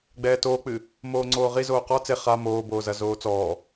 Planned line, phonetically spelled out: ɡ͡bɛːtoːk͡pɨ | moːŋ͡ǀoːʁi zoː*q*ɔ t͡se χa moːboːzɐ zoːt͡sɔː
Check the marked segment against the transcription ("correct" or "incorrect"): correct